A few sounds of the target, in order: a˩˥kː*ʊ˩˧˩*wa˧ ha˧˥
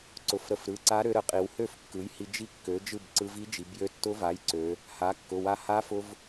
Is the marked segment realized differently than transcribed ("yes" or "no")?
no